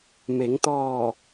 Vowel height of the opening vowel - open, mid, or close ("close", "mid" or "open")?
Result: mid